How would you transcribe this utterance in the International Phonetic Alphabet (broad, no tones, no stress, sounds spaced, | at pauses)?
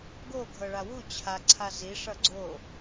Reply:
ɡ o ɡʱ ɤ ɭ a w u t͡ɕʰ a ǀʰ a z i ʂ ʌ ɡ͡ǀ o